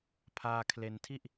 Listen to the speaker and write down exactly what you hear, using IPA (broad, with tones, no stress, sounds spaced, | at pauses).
pʰ aː˧ kʰ l e˧ n tʰ i˥˩ ʔ